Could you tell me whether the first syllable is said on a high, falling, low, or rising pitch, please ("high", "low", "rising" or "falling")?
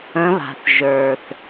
rising